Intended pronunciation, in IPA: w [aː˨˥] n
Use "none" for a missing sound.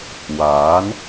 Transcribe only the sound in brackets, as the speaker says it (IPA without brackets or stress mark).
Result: aː˨˥